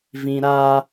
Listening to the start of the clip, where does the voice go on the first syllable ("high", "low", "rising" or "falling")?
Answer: high